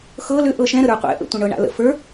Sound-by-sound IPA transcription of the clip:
x ɤ l ʏ ʔ ɤ ʃ ɛ̃ ɾ ə ɾ ə˞ qʷ ɛ̰ ʔ ə̰ tʷ ə̃ ɳ ɤ ɳ a̰ l ə̰ f ə˞

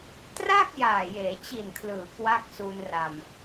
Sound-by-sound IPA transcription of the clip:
t r a˥˩ k̚ j aː˨˩ j eː˩˦ t͡ɕ i˨˩ n kʰ l ɯː˩˦ k w a˦˥ k̚ s u˧ n r a˧ m

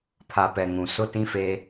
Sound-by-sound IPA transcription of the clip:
pʰ a˨ p ɛ˨ ŋ ũ˨ s ʊ˦ t ĩ˦ f eː˦

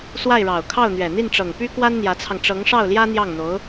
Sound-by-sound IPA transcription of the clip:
s w a˥˩ ɪ̯ ɻ ɑ˨˩ ʊ̯ kʰ ɑ˥˩ ʊ̯ n̪ ɥ ɛ˨˩ n̪ i˥˩ n ʈ͡ʂ ɤ˨˩ ŋ p y˥ k w a˥ n n̪ j ä˧˥ t͡sʰ ɑ˧ ŋ ʈ͡ʂ ɤ˧˥ ŋ ʂ ɑ˥˩ ʊ̯ l j ä˥ n̪ j ɑ˥˩ ŋ n̪ o˧˥ ʊ̯

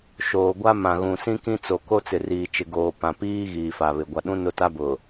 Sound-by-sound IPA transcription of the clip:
ʃ oː˨ ɡʷ a˦ m ã˨ ɣ ũ˨ s ĩ˦ k ĩ˦ t͡s o˨ k o˦ t͡s ɪ˨ r iː˨ t͡ʃ ɪ˨ ɡ oː˨ p ã˨ p iː˦ ɣ iː˨ f a˨ β ɪ˨ ɡʷ a˨ ɗ ũ˦ n ʊ˦˨ t a˦ b ʊ˨

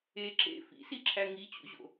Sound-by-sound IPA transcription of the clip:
e ǁ ḛ f ḭ s i ǁʰ æ ŋ i t͡ɕ ṵ ʑ o̰

